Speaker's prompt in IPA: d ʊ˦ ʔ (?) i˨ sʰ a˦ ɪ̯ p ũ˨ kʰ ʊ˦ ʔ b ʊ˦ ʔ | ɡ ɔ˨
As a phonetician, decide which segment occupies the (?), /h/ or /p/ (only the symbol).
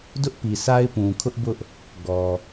p